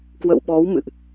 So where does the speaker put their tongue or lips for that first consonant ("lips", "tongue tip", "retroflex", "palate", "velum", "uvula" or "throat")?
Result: velum